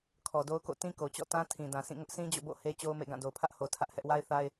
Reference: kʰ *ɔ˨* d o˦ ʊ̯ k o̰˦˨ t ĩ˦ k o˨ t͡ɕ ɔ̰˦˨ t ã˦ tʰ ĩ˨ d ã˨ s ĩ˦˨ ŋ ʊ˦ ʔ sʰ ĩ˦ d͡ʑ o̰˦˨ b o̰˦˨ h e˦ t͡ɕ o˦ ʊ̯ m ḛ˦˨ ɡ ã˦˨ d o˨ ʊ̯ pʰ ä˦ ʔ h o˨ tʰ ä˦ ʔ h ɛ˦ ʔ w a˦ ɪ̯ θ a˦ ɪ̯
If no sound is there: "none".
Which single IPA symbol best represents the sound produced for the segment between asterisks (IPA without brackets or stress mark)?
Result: ɔ˨